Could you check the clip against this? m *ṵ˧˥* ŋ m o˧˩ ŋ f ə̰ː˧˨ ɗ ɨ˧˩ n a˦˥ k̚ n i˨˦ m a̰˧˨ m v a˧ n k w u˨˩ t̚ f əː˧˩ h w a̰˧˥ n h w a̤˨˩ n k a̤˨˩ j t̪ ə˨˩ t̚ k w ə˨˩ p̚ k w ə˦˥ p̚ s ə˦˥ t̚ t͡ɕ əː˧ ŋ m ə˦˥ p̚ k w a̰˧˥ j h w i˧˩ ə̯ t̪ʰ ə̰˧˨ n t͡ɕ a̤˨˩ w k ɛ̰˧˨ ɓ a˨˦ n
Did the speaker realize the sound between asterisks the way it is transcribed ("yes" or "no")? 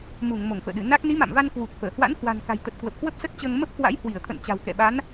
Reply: no